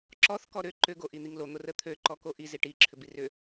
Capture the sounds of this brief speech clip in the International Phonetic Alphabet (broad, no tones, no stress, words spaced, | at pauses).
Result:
ǁɔθ kɔɾʏ ǃʏ ɡoʔin̪iŋlo n̪orət̪ʰø ǃɔkoʔi ziʈi ǁʰʏbirʏ